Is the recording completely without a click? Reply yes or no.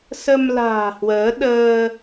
yes